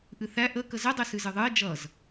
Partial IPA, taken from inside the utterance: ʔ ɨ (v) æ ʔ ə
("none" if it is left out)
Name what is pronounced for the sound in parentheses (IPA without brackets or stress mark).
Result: θ